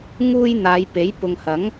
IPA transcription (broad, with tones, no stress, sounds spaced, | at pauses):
ŋ uː˥ j n̪ aː˨˧ j p e˨˥ j p ʊ˨ ŋ h ɐ˨˥ ŋ